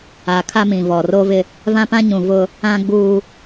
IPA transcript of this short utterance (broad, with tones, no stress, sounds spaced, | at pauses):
a˨ kʰ a˦ m ĩ˨ v ɔ˨ r o˦ v ɪ˦ | v ã˦ p ã˦ ɲ ũ˨ v ʊ˦ | ã˦ ɡ͡b uː˦